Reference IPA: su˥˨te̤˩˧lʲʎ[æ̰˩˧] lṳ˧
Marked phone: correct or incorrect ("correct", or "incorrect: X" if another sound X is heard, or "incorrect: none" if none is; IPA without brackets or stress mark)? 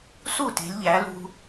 incorrect: æ˩˧